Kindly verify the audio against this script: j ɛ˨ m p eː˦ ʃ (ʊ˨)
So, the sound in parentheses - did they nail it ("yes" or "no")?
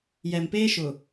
yes